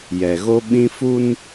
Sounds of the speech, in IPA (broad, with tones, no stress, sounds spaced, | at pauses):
j ɛ˨ ɣ o˦ ɓ ĩ˦ f u˦ n